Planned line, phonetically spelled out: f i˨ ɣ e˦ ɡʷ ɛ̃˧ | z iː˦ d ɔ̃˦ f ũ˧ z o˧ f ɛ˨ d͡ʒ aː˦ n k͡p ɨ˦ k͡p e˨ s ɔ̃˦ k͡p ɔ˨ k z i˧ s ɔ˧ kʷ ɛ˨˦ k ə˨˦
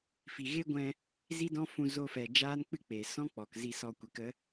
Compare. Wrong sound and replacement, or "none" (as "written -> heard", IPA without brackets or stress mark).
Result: iː˦ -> i˦